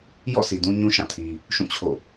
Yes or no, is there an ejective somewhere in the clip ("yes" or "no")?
no